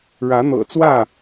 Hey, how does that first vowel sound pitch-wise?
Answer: rising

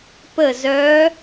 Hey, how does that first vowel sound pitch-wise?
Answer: falling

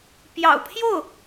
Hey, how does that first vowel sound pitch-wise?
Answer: low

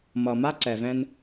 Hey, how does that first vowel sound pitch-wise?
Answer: low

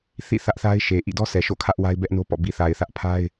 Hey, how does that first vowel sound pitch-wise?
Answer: falling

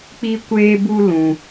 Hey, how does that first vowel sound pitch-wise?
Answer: high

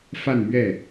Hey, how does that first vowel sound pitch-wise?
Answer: falling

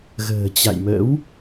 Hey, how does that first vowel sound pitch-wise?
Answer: low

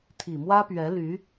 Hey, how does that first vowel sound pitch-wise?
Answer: low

